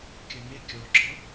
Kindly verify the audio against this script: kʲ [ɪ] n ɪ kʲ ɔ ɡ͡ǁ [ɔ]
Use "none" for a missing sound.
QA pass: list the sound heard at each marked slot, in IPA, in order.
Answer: ə, ɔ

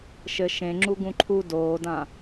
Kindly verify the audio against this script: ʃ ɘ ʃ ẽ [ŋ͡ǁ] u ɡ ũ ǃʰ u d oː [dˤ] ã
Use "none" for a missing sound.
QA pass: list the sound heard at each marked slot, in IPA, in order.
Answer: ŋ͡ǁ, d

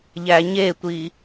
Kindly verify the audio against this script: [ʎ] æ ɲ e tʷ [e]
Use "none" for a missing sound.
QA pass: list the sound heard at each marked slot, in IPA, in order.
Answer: ʎ, i

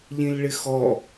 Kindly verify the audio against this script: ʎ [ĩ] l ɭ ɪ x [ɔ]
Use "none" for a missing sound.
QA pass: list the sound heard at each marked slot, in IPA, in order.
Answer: ĩ, ɔ

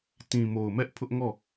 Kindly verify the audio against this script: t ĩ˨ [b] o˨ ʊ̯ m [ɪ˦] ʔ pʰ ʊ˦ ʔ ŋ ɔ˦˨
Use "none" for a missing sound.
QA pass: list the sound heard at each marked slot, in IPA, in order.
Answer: m, ɛ˦

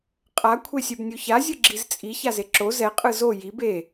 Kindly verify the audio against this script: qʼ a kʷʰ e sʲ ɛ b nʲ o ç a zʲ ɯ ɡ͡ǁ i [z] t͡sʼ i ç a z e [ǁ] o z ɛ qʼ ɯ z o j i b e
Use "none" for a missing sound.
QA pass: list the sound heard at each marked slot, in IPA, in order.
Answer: z, ǁ

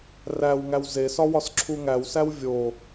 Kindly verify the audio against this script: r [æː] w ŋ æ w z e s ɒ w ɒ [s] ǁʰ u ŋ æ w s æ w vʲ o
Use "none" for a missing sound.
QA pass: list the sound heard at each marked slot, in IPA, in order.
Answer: æ, s

